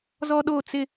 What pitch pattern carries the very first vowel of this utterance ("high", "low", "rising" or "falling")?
high